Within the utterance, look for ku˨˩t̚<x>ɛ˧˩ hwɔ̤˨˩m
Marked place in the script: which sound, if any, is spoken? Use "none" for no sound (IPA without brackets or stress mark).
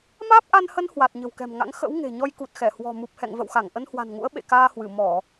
x